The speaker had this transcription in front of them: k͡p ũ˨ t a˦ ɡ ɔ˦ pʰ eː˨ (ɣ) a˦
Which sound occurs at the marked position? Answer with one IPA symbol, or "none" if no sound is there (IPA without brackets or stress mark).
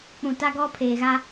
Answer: ɣ